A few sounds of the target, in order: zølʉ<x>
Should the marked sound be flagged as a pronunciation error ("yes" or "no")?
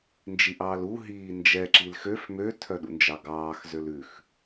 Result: no